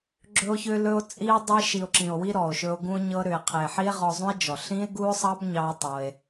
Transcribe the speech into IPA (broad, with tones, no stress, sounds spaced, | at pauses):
ɡ͡ǁ ɵ˧ o̯ ç ʏ˧ l ɵ˧ o̯ t͡sʼ i˧ o̯ dˤ e˧ ʃ i˨ o̯ ǁ ĩ˨ o̯ w i˧ ɾ ɔ˨ o̯ ʃ ɵ˧ o̯ ɡ ũ˧ o̯ ɲ ɤ˧ ɾ ʏ˨ e̯ qʰ e˨ ħ i˦ e̯ ʁ ɔ˧ zˤ ũ˦ e̯ d͡ʒ ɔ˨ ɬ ĩ˦ e̯ ɡ u˦ o̯ sˤ ɑ˦ b ɲ ɑ˦ e̯ tˤ o˧ e̯